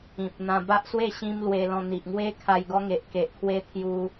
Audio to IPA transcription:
ĩ˨p̚n̪ã˧ ba˦ʔswe˥˧ ɕĩ˦mlwe˧lɔ̃˧ n̪i˨ʔŋwe˦kʰa˧j ɡɔ˦ŋe˨ʔke˨ʔkʰwe˦ t̪ʰju˧

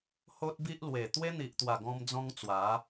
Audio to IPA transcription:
ho˦t̚bi˦ʔlwe˨˩ t̪we˦n̪i˨ʔt̪wa˨˩ɡɔ̃˧m d͡zɔ̃˦ŋt͡swa˨˦

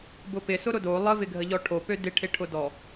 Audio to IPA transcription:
bʊpɪ sʊɾʊdo lˠə vɪɡʱəʎɔʈʰo pødɪ ʈʰɪʈʰʊdɔ

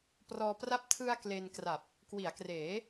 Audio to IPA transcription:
prɔː˧pra˥˩p̚ tʰɯ˧a̯ kle˧n kra˨˩p̚ | kwi˩˦a̯kreː˩˦

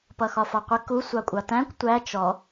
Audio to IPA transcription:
pʌxɒfɒqʷɪ ku sʷɑkʷʼɑtæ̃kʷ tʷæ t͡ʃɔ

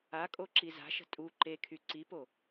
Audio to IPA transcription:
akʼo ǁiza̤ʃə̤ tʼu ǃekʰy ǀipo

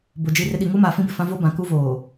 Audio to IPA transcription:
bʊ˨ d͡ʒi˨rɪ˨ ɗi˨ŋu˦maː˨ fĩ˦bɪ˨fã˦ vo˦bã˨ku˦voː˨

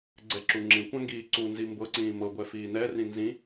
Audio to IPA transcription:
ɡ͡ǀɛǁuŋ͡ǁĩkʷã ŋɡiːǀunzi mbɤǀĩː mɤɡʷɛ fiːnɛrĩ nzĩ

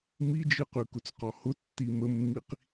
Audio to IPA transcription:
mid͡ʒɯqʉkʊt͡s qɔhʊtːi məmːiq

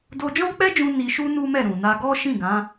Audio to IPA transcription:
do˧d͡ʒɔ̃˦k͡pɛ˦d͡ʒũ˧ ni˧ʃu˦ nu˦mɛ˦˨ɾũ˨ na˧ɡɔ˦ ʃĩ˦˨ɡã˨˦

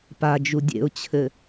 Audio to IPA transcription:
pad͡ʒu dʲḛʊ̯t͡ɕʰɘ

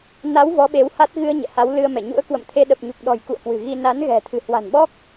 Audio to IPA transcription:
na˨˦w vɔ˨˦ɓe˨˦wha˦˥t̚ ɣɨ˧ə̯ ɲɛ̰˧˨ha˨˦wlɨ˧ə̯mɛ˧˩ ɲṵ˧˥ə̯kwə̰˧˨mt̪ʰe˧ ɗə˨˩p̚ɲu˨˩k̚ɗɔ̤˨˩j kṵ˧˨ə̯kwɨ̤˨˩ɣi˧ na˨˦nɣɛ̤˨˩ t̪ʰɨ̤˨˩hwa̤˨˩nɓɔ˦˥k̚

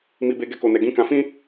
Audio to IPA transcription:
mi˧be˧ ɡɛ˦ko˧nɛ˧ ɡĩ˦ kã˧fĩ˦

